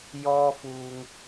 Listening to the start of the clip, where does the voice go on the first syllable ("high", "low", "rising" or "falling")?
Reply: high